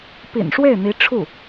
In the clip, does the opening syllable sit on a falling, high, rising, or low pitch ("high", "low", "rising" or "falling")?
low